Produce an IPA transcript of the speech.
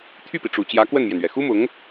t̪ʰ y˥˩ p i˩ ʈ͡ʂ u˨˩ t͡ɕ j ä˧˥ k w ə˥˩ n m j ɛ˩ n ɥ ɛ˩ x u˥ m ʊ˧˥ ŋ

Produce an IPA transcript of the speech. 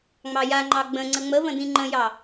ŋ͡m ɑ j a ŋ͡ǃ ɑ ɡ͡b ə̃ ŋ͡ǀ ə ŋ͡m ə v ə̃ d ĩ ŋ͡ǃ ə̃ j ɑ

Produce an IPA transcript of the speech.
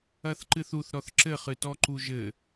ɐ θ ǃ ɨ θ u θ ɾ ɔ θ ǁ ɘ χ ɨ t ɔ ǃ u ʒ ɘ

